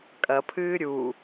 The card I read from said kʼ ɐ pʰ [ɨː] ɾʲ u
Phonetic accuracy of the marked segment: correct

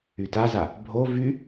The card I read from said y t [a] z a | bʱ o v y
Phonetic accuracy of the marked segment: correct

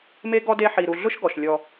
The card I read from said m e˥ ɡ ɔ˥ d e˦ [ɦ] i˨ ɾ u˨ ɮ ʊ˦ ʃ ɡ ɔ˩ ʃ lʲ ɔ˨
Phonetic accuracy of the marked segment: incorrect: ħ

